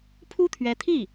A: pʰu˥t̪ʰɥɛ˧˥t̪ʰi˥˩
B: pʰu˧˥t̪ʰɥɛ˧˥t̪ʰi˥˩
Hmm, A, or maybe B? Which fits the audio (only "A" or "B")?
A